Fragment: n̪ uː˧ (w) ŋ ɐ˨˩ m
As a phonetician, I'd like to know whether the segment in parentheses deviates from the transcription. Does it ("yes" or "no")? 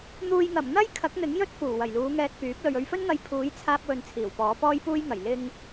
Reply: yes